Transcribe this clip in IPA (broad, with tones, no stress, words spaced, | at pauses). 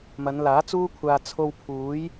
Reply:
mɐ˨˧nlaː˨˥t͡suː˥kʷʰaː˧ t͡sʰo˧wpʰuː˨˥j